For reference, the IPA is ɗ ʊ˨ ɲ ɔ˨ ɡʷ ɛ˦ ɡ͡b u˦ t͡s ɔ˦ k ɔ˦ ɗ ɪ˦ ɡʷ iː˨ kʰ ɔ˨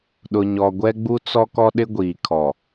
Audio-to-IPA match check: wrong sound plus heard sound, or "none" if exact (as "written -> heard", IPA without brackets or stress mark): none